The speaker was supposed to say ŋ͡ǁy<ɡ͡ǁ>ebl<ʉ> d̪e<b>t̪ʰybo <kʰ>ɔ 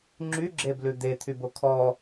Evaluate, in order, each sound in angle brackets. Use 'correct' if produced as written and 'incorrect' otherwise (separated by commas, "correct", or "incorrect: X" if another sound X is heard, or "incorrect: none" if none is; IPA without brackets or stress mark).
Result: correct, correct, incorrect: none, correct